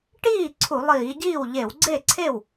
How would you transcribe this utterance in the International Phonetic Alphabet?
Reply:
ʈiː˥˩ ǀʰu˧˩˧lˠiː˧˩˧ɟiː˥˩w ʎe˧˩˧wɡ͡ǀe˥˩ ǀʰe˥˩w

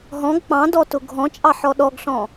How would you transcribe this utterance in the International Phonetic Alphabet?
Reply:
ɦɔ̃ɡ k͡pɑ̃dɔ tʊɡʱɔ̃t͡ʃʼɑ ħɔɗɔɡɬɔ̃

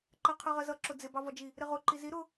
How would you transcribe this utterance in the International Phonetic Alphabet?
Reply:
ǃɜqʰɜʁɜzʌ ǁʊd͡zɪ bɑvɒd͡ʒi | ɾɪʁʊ ǃizi ɾʊ

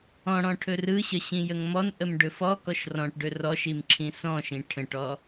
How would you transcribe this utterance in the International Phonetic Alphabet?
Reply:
ɔ̃ɽɔ̃ ʈʰɵrɯɕə ɕĩjəŋmɔnʔəm ɖɵfɔkɔʃ rɔ̃ʈɖɵ rɔʃim ǁʰĩsɔ̃ʃĩ ʈʰə̃ʈɔ

